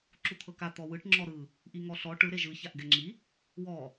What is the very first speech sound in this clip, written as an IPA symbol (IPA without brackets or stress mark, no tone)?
ǁ